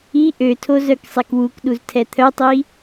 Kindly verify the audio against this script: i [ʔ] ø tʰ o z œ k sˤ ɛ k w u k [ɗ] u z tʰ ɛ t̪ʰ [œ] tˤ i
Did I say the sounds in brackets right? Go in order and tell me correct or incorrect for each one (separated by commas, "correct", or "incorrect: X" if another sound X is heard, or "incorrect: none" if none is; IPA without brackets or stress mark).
correct, correct, correct